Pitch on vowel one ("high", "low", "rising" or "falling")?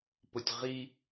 low